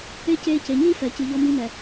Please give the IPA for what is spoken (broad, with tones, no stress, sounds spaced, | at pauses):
e˦ c eː˧ c e˨ ɲ i˦ f ɛ˨ c ɨ˨ ʎ ɔ˧ m i˧ m ɛ˨